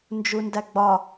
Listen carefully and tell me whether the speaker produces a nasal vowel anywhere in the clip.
no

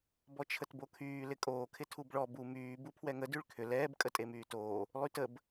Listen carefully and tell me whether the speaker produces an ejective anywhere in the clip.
yes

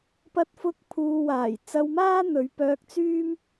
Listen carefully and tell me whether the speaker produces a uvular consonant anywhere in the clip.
no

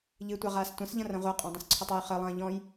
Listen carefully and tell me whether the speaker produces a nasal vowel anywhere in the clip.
yes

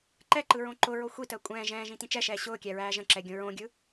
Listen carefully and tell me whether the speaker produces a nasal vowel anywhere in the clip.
yes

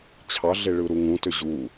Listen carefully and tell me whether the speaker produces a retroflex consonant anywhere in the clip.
yes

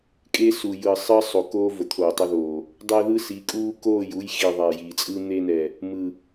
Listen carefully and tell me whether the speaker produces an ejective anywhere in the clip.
yes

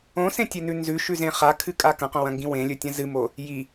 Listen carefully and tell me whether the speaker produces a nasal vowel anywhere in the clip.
yes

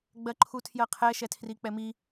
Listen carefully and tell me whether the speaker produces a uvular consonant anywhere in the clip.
yes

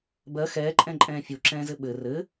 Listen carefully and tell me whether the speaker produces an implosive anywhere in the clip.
yes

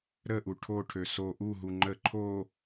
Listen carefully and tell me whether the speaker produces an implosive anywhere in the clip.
no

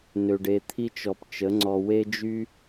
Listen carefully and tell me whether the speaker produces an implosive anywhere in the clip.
no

